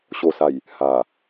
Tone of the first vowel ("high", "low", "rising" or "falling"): low